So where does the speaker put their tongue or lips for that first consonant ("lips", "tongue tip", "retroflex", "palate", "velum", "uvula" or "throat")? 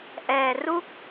throat